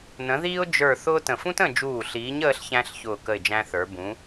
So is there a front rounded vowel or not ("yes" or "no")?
no